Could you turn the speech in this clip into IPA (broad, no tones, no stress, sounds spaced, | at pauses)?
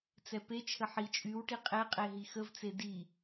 t͡s ɛ p e t͡ʃʰ ə ħ i t͡ʃʼ y w ʈ i qʼ e qʼ e ɦ i x ə v t͡s e d i